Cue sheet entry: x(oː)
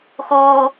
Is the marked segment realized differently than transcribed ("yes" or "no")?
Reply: no